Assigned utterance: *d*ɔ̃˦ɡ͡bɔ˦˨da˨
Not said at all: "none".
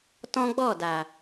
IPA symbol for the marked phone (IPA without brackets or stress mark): t